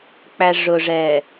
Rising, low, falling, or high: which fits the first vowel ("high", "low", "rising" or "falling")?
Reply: low